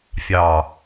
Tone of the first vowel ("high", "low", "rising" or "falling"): low